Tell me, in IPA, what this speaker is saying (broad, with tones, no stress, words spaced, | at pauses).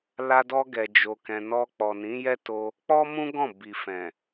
la˧dɔ˧ɡɛ˨ d͡ʒo˧kɛ̃˧ nɔ˧k͡pɔ˨nĩ˨˦ jɛ˦to˧ | k͡pɔ˦ mũ˦ ɡɔ̃˦˨ bi˨ fɛ̃˨